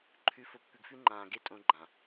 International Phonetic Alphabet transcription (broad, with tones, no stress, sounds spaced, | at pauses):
ǃʰ ʉ˨˦ f o˨ pː ʉ˨ ɡ f ʉ˦ ŋ͡ǃ ãː˨ ɡ e˦ tʼ õ˦ ɡ͡ǃ ã˨